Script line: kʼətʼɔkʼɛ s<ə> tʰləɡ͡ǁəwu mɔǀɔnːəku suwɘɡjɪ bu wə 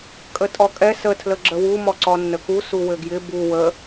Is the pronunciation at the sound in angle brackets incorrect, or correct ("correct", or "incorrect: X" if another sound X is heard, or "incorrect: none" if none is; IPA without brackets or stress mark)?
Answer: correct